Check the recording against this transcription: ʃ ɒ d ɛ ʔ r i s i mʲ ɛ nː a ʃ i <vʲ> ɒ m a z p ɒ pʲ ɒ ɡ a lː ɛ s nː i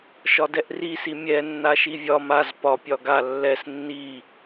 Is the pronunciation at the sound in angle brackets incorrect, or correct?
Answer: correct